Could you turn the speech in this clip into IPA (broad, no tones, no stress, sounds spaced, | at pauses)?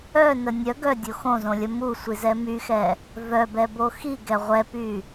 œ n ə nʲ œ ɡ œ dʲ o x õ z õ lʲ ə m u sʷ i z ɛ m y x ɛ | v œ b ɛ b o x i ɡ ɛ ʁʷ ɛ p y